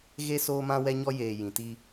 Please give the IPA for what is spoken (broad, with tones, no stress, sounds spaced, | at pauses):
ɣ e˦ s oː˦ m ã˦ w ɛ˦ ɲ ɔ˦ j eː˨ j ĩ˨ t i˦